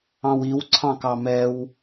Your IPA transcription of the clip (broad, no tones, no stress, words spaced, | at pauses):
ɑ̃wiw ǀʰɑ̃kɑmɛw